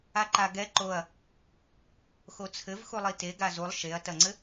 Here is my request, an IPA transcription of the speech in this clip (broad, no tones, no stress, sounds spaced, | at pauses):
a ǃ a ɡ ɛ ǃ o ɐ̯ | x o t͡sʰ ɘ v x u lˠ i t e ɡ a z u lˠ ʃ e ɐ̯ t ɐ ŋ͡ǀ ɘ